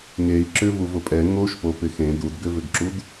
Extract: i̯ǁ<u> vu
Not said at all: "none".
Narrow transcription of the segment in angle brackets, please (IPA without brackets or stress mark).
ʏ